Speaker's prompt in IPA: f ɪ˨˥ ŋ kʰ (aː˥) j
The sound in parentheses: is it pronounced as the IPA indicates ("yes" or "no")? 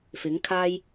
yes